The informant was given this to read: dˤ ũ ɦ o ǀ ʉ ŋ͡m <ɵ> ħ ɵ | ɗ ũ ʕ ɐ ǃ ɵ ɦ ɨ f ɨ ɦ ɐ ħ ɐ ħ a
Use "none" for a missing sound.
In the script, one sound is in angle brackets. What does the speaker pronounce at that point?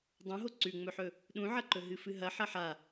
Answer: ɵ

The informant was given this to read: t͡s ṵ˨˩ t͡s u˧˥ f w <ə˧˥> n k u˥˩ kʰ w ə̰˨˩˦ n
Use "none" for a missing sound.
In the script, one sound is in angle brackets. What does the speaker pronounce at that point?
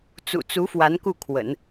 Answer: a˧˥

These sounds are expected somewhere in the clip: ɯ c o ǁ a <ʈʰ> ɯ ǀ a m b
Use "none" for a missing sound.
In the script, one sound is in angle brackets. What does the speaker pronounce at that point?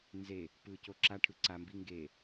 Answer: ʈʰ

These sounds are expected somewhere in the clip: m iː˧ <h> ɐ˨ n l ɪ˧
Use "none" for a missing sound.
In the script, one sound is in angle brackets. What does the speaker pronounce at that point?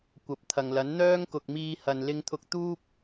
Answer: h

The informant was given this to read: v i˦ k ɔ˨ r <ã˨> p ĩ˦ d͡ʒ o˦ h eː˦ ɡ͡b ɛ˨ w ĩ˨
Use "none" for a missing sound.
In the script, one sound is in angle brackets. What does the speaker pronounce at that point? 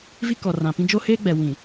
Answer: ã˨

